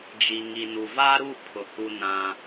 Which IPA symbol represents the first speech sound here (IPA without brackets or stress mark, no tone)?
d͡ʒ